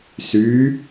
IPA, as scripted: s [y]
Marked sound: correct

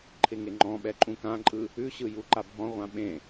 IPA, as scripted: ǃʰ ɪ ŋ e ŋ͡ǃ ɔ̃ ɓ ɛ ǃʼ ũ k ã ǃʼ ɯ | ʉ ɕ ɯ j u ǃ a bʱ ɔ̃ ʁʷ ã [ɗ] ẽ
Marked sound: incorrect: ɓ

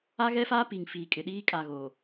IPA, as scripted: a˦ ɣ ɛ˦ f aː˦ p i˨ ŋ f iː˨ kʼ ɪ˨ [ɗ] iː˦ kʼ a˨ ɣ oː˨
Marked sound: correct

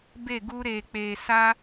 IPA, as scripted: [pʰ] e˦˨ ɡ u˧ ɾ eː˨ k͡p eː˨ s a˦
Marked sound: incorrect: b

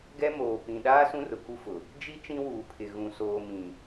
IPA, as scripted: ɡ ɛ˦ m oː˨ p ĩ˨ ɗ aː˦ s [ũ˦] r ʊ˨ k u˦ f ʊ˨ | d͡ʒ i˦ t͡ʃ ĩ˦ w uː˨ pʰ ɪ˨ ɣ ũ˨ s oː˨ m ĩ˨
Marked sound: correct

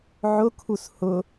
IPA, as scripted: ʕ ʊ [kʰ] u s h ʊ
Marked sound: correct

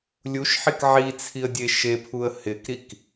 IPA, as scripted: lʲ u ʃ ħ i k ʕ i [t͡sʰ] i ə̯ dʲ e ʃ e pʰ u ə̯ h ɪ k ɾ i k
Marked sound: correct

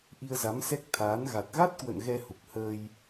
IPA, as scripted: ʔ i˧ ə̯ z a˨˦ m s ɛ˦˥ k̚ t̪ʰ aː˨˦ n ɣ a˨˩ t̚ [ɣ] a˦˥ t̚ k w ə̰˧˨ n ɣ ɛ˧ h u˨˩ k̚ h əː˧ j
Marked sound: correct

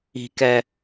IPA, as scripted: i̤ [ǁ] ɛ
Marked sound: incorrect: k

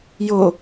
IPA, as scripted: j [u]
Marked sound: incorrect: o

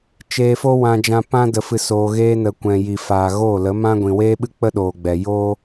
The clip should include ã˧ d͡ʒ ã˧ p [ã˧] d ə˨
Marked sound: correct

